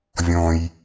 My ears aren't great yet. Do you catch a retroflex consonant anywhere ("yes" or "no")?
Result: no